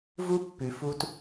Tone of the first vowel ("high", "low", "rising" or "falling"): high